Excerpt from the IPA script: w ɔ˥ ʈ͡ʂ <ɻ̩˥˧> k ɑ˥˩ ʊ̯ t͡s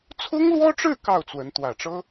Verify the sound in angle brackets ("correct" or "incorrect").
correct